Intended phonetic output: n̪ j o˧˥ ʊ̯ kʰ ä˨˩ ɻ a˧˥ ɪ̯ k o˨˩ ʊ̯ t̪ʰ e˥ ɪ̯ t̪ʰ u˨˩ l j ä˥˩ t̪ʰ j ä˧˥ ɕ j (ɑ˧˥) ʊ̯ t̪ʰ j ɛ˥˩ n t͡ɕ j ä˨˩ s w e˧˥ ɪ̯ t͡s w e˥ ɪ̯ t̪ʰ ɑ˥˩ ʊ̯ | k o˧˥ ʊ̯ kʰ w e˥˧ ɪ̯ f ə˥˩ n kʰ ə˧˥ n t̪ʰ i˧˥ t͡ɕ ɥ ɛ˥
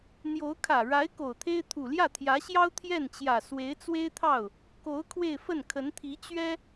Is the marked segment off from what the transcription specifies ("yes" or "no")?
yes